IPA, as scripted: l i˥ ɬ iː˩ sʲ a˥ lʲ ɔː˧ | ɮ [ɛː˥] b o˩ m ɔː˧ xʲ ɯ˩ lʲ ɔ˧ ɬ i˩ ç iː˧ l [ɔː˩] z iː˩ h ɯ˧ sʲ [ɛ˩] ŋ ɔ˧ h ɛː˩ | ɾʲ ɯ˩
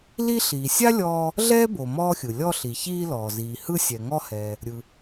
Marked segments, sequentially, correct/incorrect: correct, correct, correct

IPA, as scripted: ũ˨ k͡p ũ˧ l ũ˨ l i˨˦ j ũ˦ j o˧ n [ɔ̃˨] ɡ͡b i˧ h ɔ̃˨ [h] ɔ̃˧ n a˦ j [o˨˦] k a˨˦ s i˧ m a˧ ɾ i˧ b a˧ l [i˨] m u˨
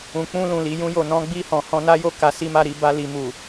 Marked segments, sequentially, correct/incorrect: incorrect, correct, incorrect, correct

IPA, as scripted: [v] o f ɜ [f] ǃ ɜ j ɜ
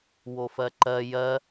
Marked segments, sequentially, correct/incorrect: incorrect, incorrect

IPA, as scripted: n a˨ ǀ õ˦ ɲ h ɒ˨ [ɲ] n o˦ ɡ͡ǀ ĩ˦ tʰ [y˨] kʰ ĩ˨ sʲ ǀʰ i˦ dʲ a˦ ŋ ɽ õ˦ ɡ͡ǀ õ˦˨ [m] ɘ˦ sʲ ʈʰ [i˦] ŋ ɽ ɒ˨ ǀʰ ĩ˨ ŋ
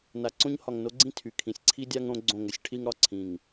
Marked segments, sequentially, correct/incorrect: incorrect, correct, incorrect, correct

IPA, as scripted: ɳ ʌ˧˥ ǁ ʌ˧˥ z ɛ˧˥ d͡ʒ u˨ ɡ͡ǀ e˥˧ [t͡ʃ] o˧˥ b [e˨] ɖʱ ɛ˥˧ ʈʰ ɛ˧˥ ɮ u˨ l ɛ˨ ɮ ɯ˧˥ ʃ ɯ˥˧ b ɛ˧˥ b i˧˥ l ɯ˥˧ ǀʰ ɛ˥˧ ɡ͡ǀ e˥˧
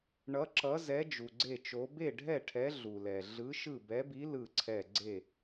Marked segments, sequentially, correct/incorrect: correct, incorrect

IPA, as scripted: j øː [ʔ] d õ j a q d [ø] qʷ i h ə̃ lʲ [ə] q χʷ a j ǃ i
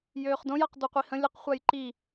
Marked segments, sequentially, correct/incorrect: incorrect, incorrect, correct

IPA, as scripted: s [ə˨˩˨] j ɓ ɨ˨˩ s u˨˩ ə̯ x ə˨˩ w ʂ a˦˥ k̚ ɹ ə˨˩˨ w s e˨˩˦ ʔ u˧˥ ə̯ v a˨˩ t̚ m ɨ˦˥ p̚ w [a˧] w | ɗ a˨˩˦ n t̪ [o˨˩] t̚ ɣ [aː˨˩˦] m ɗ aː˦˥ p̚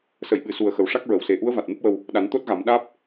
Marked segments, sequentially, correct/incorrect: correct, incorrect, incorrect, incorrect

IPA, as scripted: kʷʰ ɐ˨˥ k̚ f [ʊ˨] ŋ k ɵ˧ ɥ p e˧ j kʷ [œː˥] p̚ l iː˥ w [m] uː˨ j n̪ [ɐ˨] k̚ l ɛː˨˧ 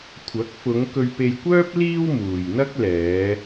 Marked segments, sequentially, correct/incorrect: incorrect, correct, correct, incorrect

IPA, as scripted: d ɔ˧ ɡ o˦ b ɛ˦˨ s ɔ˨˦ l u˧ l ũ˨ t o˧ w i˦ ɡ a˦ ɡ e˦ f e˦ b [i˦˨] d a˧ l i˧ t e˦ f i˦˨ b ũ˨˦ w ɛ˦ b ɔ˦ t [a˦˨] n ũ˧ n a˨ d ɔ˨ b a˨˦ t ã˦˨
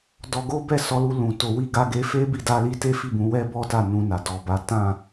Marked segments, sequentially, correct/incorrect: correct, correct

